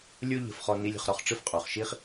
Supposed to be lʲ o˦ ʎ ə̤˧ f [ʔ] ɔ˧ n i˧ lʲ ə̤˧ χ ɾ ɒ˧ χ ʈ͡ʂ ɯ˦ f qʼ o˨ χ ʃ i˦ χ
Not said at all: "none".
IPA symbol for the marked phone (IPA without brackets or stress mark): χ